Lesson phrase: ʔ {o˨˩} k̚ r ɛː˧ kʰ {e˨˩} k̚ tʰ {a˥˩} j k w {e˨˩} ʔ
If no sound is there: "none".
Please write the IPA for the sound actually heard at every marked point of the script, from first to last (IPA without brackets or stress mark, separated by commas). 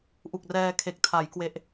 u˨˩, e˨˩, a˩˦, e˨˩